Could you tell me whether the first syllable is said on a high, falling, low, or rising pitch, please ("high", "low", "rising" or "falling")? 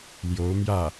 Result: rising